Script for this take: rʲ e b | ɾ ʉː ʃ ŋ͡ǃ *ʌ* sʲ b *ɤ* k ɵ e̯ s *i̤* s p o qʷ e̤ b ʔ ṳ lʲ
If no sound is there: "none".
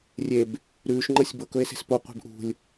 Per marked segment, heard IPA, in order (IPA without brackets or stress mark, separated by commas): ʌ, ɤ, e̤